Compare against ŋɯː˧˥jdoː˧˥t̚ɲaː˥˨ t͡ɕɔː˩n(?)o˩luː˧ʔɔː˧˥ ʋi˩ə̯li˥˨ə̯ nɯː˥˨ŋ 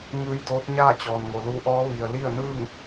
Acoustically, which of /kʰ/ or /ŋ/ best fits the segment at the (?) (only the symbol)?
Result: ŋ